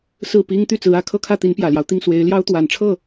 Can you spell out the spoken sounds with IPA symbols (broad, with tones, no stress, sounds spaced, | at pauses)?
s ɹ̩˥˩ p i˥ ŋ t̪ y˥˩ t͡s ɹ̩˧˥ ä˨˩ kʰ ɤ˥˧ kʰ ä˥˩ t̪ i˧˥ n p j ä˨˩ l j ɑ˦ ʊ̯ t̪ i˥˩ ŋ s w e˧˥ ɪ̯ l j ɑ˥ ʊ̯ t̪ w a˨˩ n ʈ͡ʂʰ ɤ˥˩